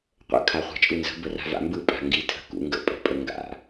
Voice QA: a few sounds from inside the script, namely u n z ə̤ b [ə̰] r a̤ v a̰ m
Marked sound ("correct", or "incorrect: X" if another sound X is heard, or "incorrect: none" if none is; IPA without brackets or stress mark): incorrect: ə